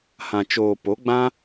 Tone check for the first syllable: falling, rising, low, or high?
low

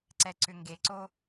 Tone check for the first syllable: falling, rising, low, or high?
low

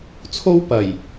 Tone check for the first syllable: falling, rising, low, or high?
high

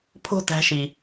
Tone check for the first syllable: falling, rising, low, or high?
falling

